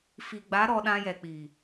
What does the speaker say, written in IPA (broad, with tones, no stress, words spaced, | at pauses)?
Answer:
fi˨ɡ͡ba˨˦ ɾɔ˧ɗã˧jɛ˨k͡pi˨